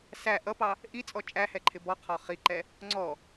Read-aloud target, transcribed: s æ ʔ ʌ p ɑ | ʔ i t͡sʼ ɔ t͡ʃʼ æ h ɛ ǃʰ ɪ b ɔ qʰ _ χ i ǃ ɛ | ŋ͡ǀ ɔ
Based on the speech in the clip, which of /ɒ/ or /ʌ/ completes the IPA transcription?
ɒ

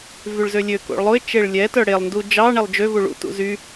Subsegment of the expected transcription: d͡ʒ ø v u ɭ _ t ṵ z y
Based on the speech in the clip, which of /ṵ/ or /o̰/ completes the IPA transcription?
ṵ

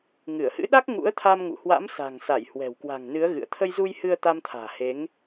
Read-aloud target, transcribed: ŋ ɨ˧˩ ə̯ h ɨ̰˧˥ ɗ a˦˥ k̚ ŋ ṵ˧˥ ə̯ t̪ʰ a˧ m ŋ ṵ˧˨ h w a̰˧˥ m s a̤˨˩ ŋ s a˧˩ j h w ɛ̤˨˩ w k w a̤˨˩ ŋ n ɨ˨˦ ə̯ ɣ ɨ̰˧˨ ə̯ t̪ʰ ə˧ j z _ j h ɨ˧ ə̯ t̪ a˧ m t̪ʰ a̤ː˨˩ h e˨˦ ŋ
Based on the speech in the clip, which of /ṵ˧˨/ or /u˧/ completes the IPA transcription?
u˧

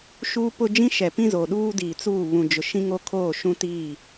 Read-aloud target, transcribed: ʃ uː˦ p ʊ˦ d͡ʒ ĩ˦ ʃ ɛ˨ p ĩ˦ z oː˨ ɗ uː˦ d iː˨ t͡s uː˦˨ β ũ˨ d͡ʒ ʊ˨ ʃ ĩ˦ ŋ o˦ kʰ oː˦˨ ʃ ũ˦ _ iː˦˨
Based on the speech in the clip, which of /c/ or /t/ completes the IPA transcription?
t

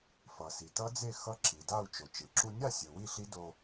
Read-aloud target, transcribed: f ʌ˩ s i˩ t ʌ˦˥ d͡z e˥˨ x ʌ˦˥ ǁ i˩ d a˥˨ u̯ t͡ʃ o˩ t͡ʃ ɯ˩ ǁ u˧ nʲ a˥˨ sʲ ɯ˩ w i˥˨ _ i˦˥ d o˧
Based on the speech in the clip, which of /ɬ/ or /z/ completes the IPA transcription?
ɬ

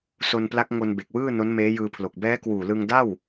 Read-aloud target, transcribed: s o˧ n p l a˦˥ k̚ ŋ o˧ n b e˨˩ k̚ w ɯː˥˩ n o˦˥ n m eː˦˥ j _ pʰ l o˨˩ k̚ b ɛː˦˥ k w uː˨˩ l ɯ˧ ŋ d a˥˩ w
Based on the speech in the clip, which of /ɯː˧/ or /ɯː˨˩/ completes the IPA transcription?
ɯː˧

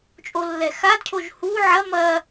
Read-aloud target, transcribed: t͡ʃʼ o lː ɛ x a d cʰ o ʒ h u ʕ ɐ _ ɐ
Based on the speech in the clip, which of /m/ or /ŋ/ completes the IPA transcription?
m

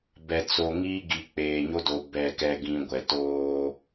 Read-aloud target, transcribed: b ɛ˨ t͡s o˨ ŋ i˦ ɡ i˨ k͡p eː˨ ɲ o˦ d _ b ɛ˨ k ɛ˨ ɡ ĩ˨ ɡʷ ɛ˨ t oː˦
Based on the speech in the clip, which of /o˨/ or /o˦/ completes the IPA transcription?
o˨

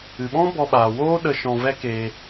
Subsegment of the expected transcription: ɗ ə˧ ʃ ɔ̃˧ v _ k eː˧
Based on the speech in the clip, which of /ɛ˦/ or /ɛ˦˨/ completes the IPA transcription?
ɛ˦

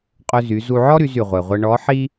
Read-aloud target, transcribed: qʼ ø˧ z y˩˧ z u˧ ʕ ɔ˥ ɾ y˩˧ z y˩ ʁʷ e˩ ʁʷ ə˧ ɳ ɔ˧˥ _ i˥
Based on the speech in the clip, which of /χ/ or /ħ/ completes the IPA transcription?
ħ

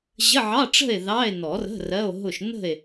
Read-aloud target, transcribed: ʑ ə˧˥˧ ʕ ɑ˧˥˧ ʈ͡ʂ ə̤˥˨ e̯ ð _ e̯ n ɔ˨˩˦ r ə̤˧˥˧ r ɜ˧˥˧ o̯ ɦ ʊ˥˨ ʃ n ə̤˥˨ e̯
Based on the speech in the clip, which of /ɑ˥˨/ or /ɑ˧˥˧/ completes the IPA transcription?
ɑ˧˥˧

